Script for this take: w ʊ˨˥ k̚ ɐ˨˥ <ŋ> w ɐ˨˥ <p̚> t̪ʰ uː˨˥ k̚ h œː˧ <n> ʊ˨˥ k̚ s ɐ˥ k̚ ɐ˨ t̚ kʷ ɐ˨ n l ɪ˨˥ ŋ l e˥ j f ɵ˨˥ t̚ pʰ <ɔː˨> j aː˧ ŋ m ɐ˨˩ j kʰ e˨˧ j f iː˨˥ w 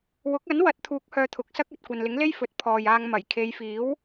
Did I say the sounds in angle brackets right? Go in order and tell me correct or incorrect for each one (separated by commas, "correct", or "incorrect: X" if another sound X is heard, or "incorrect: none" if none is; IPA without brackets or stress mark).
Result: incorrect: n, incorrect: t̚, incorrect: t̪ʰ, correct